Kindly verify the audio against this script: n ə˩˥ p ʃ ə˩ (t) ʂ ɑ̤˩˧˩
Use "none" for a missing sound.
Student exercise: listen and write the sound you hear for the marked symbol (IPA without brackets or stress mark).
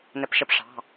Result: p